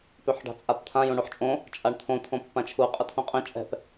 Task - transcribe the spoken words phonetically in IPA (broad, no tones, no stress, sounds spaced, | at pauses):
p ø ħ ɖ a̤ t͡sʼ a p t̪ʰ ã j õ ɳ o ħ t͡ʃʼ õ | t͡ʃʼ a ɳ t̪ʰ õ tʰ õ pː ã t͡ʃʰ u qʼ ə tʰ õ qʼ ɛ̃ t͡ʃʼ ɛ̤ p